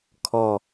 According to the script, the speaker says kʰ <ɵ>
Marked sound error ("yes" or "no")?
yes